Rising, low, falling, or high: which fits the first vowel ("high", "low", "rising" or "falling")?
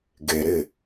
low